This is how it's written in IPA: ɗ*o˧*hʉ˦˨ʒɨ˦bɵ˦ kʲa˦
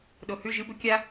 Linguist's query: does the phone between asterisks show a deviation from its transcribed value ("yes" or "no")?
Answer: yes